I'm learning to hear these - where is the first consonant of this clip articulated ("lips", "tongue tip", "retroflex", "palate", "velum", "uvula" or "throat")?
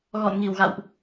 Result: velum